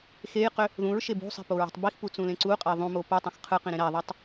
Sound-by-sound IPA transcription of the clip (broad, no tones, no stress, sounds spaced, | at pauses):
x e j q ø | ð ũ ɹ ʃ e b ṳ sˤ i̤ p o ɹ i̤ tˤ b i x p u t͡s ũ l ẽ ǀ u qʼ e ðˤ ũ m o p u tˤ ẽ x qʰ ɯ q ĩ ɾ ẽ ɾ æ ðˤ æ tˤ